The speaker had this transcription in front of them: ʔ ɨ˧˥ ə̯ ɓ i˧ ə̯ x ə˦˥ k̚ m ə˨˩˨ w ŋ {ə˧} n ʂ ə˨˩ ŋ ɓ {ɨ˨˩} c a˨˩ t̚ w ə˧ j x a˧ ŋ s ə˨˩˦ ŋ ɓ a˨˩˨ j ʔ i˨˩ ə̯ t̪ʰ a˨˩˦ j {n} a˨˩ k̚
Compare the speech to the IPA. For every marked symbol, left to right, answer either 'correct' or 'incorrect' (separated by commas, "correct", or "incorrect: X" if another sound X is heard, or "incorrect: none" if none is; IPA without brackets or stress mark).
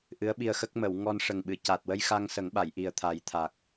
incorrect: ɔ˧, incorrect: ɨ˨˩˨, incorrect: t̪ʰ